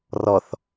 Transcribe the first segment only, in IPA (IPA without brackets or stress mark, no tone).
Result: r